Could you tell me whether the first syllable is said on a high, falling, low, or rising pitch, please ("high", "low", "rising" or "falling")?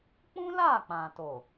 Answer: high